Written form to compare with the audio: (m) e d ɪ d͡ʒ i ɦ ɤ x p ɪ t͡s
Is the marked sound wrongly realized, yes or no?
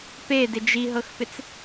yes